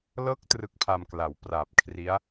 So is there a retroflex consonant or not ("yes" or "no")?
no